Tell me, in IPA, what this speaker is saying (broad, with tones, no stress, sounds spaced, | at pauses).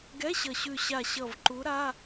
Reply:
ɡ ɛ˧˥˧ ɕ ʌ˨˩ ɕ ʉ˨˩ ɕ a˨˩ ɕ ʌ˨˩ v ǃ u˨˦ ɾ a˧˥˧